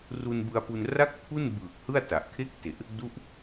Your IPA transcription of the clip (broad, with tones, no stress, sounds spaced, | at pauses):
r u˧ n b ɯ˧ a̯ p u˧ n r a˥˩ k̚ pʰ u˥˩ n b ɯː˨˩ k̚ h ɯ˥˩ a̯ t a˨˩ ʔ kʰ e˥˩ k̚ t e˨˩ ʔ | d u˦˥ ʔ